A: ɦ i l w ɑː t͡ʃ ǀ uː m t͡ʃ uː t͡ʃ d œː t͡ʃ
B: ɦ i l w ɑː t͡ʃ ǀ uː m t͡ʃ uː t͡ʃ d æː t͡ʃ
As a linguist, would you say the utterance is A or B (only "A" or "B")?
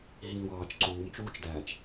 B